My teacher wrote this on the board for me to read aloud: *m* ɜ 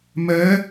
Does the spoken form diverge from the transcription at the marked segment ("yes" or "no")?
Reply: no